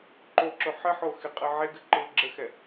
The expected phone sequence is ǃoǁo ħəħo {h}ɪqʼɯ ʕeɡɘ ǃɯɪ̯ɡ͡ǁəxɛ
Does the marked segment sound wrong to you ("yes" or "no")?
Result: yes